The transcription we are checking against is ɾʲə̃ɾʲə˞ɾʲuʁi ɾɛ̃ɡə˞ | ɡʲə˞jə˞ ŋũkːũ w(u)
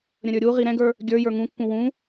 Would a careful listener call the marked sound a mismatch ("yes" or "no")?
yes